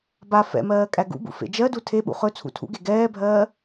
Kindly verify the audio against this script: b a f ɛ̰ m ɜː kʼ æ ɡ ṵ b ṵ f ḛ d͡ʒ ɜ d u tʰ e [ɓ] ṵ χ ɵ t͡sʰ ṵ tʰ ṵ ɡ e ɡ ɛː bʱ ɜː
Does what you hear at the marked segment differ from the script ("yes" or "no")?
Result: no